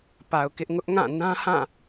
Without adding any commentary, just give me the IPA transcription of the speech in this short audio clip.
pa˨ʊ̯kɪ˦ʔ ŋʊ˦ʔŋã˦˨ nã˦hã˦˨

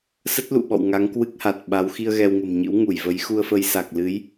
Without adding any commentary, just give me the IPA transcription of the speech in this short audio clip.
sə˦˥t̚lṵ˧˨ɓɔ̰˧˨w ŋa˨˦ŋkwɨ˦˥k̚ha˨˩t̚ɓa˨˦w xi˧ə̯ɣɛ˧wŋə̤˨˩mɲɨ̰˧˥w ŋu˧˩jvə˨˦jxu˧ə̯fə˧j sa˨˩k̚lɨ˨˦j

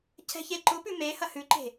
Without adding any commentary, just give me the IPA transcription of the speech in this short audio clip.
cʰɛ̤çeǃʊpʉ mehɐ hʉǃe̤

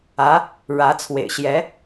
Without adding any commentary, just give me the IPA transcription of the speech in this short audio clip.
ä˧˥ | ɻä˧˥t͡sʰwḛ˨˩ɪ̯ ɕjɛ˧˥

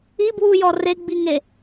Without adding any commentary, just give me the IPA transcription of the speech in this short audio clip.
ibwujɔ reɡ͡biŋe

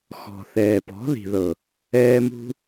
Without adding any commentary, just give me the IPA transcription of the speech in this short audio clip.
xɔ̤˨θɛː˨pɔ̤˨˦ ði̤˨ðɤ˨ | ɛː˧mṳ˧

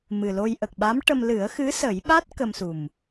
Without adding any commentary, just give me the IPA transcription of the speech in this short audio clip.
mɨ˨˩lo˧j ʔə˨˩k̚ɓa˧˥m ʈə˧m lɨ˨˩˦ə̯xɨ˧˥sə˨˩˦jɓa˦˥t̚ kə˧msu˨˩m

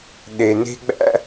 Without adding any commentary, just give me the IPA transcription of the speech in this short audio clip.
ɗe˩ne̤˧ɡ͡bæ̰˧

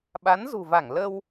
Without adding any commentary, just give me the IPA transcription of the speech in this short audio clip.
ɓa˨˦nzṳ˨˩va˧˩ŋ lə˧w

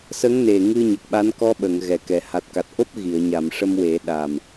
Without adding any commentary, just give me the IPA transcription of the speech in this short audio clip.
sə˧˥ŋ ne˨˩ ŋɨ˧ ɲə˨˩k̚ɓa˧˥n kɔ˧˥ɓə˨˩˨ŋ ɣɛ˨˩kɛ˨˩˦ ha˨˩t̚ka˨˩t̚ʔo˦˥p̚ ɣi˨˩˨ə̯ɲa˨˩˨m ʂə˧mwe˨˩˦ ɗa˨˩m

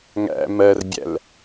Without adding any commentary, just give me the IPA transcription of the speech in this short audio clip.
ŋæ̰ mɜrbʲæ̰l

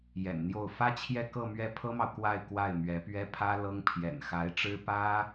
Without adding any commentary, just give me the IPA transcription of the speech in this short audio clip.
jɛ̰˨˩nn̪jo˥˩ʊ̯ fä˥t͡ɕʰjɛ˥˧ kɤ˥˧mɥɛ˥˩ pʰɤ˥mɑ˨ʊ̯ kwa˥˧ɪ̯ kwa˥˩ɪ̯mɥɛ˧˥pɥɛ˥ pʰä˥ lɤ˥ŋ pʰjɛ̰˨˩nxa˧˥ɪ̯ʈ͡ʂɻ̩˥ pä˥

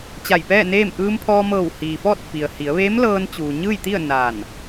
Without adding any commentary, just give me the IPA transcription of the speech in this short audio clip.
t͡ɕa˧˩jpɛː˥˨neː˥˨m ʔɯː˧mpʰɔː˧mɤː˧˩w hiː˩ fɔː˥˨t̚fi˩ə̯ hi˩˧ə̯ʋeː˧˥mlɤː˧n t͡ɕuː˩ɲɯː˥˨jt̪i˥˨ə̯ naː˧˩n

